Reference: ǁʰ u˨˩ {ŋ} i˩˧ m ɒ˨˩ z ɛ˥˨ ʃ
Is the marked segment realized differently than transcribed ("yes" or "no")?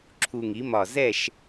no